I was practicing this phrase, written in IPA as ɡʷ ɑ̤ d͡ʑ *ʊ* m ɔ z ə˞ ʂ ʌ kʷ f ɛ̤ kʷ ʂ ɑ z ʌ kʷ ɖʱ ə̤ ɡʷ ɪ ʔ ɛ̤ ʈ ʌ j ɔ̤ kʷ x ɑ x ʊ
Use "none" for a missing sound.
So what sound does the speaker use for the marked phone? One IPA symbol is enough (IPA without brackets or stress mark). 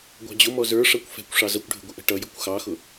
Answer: ʊ